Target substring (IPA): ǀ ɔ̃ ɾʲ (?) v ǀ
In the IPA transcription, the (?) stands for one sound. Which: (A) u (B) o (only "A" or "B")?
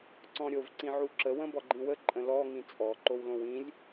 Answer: B